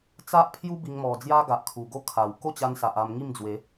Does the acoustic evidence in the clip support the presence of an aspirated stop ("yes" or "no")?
yes